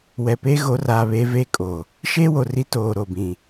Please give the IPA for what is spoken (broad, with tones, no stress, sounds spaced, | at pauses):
w ɛ˨ p eː˦ ɣ o˨˦ r aː˨ β eː˦ v eː˦ kʼ oː˨ | ʃ eː˦ w o˨ r i˦ t oː˨ ɾ o˨ b ĩ˨